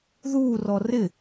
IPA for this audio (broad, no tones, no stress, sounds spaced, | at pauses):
ð uː r ɔ r ɪ